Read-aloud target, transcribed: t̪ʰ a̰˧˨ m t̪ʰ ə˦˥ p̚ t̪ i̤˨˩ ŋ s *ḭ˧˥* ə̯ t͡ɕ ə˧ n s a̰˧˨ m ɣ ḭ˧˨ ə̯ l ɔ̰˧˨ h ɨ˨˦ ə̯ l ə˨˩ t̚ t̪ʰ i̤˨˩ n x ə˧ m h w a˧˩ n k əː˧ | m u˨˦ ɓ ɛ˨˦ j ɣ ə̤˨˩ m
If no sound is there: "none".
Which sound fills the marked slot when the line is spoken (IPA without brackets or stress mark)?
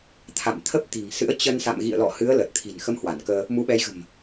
ɨ̰˧˥